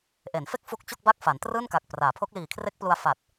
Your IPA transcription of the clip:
ʔ e˩˦ n f e˥˩ k̚ f u˦˥ k̚ t͡ɕ o˥˩ k̚ b a˥˩ k̚ f a˩˦ n t r ɯː˥˩ n k a˨˩ k̚ p r aː˩˦ pʰ o˦˥ k̚ l iː˨˩ kʰ r e˦˥ k̚ p l u˧ a̯ f a˨˩ t̚

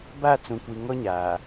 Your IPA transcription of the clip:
b a˦˨ t͡s ũ˨ kʷ i˨ ŋ ɔ˦ ɲ aː˨

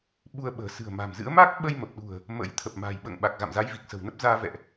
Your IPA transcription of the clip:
ɓ u˧ ə̯ ɓ ə̤ː˨˩ s ɨ̤˨˩ ə̯ m a̤˨˩ m z ɨ̰˧˥ ə̯ m a˦˥ k̚ ɓ ə˧ j m ə˨˩ p̚ ɗ ṳ˨˩ ə̯ | m ə̰˧˥ j t̪ʰ ə˨˩ p̚ m a̤ː˨˩ j ɓ ə̰ː˧˨ ŋ ɓ a˨˩ k̚ ɣ a̰˧˨ m z a˨˦ j v i˨˩ k̚ s ə̤˨˩ w n ə˦˥ p̚ z aː˧ v ɛ̰˧˨ ʔ

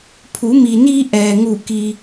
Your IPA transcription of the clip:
pʰ u˩˧ m i˩ n iː˧ ʔ ɛː˩ ŋ u˧˩ k i˧

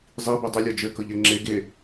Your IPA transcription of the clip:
zˤ i b ɛ dˤ ə lʲ ɔ d͡ʒ ø k ɤ ʎ ɛ ŋ͡ǁ e ɡ e

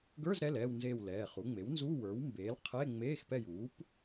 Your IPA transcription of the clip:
ɡ ə˞˧˥˧ z ɾ ɛ˩˧˩ l ɛː˦˨ w n z eː˦˨ w l ɛː˩˧˩ χ u˩˥ ŋ͡m e˩˥ w n z u˧˥˧ w ə˞˩˥ w m b eː˩˥ l qʰ e˧˥˧ ŋ͡m eː˧˥˧ x p ɛ˦˨ j uː˩˥ p

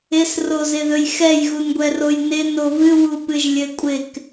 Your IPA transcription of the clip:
ɪ s r o z ɪ ð ɵ j x ɛ j ɣ u n ɡʷ ɛ r o j n ɪ n o v ɨ w u p ɨ ʒ lʲ ɘ kʷʼ ɪ k

